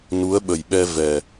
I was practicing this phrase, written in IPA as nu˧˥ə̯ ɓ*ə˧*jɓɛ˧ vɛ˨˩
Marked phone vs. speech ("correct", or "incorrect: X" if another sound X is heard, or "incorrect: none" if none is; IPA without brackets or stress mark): incorrect: ə˨˩